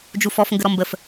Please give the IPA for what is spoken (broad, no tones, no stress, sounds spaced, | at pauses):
d͡ʒ u f ɔ f ŋ ɡ ə ɾ ɔ m b ə f